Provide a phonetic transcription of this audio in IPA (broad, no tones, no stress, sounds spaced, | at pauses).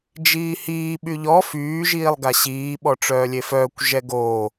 d͡ʒ iː h iː ɓ y ʎ ɔ f yː ʒ iː lˠ ɡ a ɕ iː ɓ ɔ ʈ͡ʂ œː lʲ e f œː kʷ ʒ ɛ ɡ o